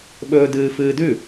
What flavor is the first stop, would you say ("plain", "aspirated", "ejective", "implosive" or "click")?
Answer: implosive